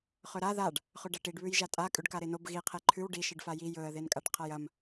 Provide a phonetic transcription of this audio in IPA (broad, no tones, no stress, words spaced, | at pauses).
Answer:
χɵɾa ðaɖ | χɵɖɐʈiɖ βʉjʒatʼa kʼʉɖkaɾenob ɣi qʰeǃʰʉw ɖi ʃɨɖfaji jɵə̯ ðenkʼaʈqʰajɐm